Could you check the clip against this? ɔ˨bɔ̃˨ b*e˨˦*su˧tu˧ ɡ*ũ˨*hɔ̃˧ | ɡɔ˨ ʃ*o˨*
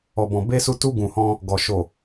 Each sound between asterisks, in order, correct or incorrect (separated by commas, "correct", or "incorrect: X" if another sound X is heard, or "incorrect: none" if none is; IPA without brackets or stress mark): incorrect: e˧, correct, correct